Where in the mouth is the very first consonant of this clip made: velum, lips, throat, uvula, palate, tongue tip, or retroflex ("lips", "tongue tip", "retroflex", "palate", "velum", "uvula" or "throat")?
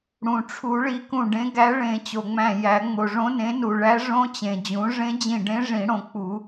retroflex